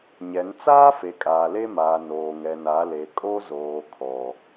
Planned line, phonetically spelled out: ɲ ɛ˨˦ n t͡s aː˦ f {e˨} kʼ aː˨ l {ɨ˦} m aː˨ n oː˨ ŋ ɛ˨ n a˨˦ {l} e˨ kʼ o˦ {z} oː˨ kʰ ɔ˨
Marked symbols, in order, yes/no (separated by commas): yes, no, yes, yes